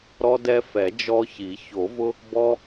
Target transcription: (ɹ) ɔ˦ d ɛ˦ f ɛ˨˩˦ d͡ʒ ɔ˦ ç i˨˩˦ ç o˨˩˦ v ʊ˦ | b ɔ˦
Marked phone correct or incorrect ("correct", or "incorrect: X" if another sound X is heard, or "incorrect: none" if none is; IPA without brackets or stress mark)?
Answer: incorrect: ɾ